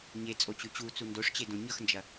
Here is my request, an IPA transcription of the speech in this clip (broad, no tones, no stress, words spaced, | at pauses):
ɲet͡sʼot͡ɕʉ t͡ɕut͡su ndoʂt͡ɕedõ ɲʌxnd͡ʒɐ